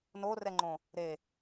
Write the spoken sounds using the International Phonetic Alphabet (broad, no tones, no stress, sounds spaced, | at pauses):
n o r ɛ ŋ͡ǃ õ | ɾ e